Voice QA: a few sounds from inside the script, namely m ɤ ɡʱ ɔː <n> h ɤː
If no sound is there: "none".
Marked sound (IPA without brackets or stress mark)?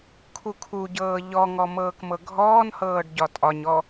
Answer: n